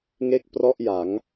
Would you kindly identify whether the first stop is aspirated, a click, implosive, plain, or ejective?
plain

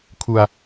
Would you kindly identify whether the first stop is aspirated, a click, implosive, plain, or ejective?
aspirated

